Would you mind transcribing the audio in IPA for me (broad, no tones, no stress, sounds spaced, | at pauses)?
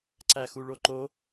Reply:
ǀ æ x u ɭ o ǃ o